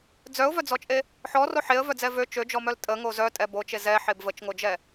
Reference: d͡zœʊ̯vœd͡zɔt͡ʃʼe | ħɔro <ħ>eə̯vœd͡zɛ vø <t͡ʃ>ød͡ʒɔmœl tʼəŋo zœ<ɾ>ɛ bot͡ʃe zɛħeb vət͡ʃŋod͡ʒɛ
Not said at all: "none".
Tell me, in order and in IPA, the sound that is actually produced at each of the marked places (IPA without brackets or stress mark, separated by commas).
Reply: ħ, t͡ʃ, tʼ